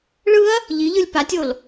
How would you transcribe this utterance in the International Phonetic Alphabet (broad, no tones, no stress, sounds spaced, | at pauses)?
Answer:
ɭ ɯ ɐ̯ | ʎ i ʎ ɯ lʲ p a tʲ o l